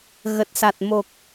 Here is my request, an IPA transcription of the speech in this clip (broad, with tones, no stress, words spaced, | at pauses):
ɣə˨˩t̚sa˨˩t̚ mo˨˩k̚